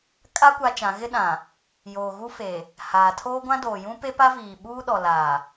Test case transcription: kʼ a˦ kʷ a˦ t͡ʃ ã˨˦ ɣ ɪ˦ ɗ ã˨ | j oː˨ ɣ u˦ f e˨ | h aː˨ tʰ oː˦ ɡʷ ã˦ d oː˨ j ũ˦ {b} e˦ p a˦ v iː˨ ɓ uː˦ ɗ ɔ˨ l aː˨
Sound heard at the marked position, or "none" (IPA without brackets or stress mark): p